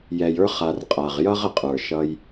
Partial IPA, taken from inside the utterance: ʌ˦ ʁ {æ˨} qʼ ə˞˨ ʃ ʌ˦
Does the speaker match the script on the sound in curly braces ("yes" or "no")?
no